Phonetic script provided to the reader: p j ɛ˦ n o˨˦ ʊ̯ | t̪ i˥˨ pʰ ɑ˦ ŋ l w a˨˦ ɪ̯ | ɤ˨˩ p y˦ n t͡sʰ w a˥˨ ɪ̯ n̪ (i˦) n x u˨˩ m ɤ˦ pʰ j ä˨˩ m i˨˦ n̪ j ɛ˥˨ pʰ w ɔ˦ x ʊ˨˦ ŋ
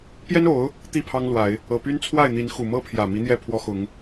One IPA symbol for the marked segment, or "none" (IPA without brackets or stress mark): i˨˦